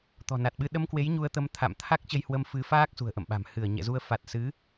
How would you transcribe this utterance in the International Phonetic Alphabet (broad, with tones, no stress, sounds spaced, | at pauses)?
t̪ ɔ̤˨˩ n a˨˩ t̚ ɓ ɨ˧ ɗ ə˧ m k w e˨˦ j ɲ u˧ ə̯ t̪ ə˧ m t̪ʰ a̰˧˨ m t̪ʰ a˦˥ k̚ t͡ɕ ə˧ j h w ə˧ m f ɨ˨˦ f aː˦˥ k̚ s ṳ˨˩ ə̯ ʔ ə̰˧˨ m ɓ a̤˨˩ m h ɨ˧˩ ə̯ ɲ ɛ̰˧˨ z u˧ ə̯ f a˨˩ t̚ s ɨ˨˦